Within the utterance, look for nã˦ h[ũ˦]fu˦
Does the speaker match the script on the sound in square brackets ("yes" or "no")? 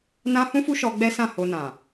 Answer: yes